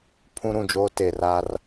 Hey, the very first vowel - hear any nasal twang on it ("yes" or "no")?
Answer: yes